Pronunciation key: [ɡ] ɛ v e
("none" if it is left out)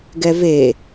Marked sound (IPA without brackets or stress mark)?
ɡ